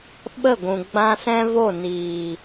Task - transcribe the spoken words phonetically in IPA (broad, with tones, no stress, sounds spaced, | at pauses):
ɓ ə˦˨ ɡʷ ũ˨ ɡ͡b ã˧ s ɛ̃˦ v o˦˨ n iː˨